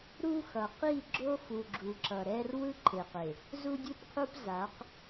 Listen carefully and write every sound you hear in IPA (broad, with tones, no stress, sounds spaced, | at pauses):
ɾ u˦ x ʌ˨ q i˦˨ ɡ͡ǁ o˦ f u˨ ɡ͡ǁ u˨ ǁ ʌ˨ ɾ ɛ˦ r w ɯ˦ ǃʰ e˨ q e˨ | z u˦ dʲ u˦ p qʰ u˦ p z a˨˦ q